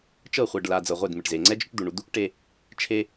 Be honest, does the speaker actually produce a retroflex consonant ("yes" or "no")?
yes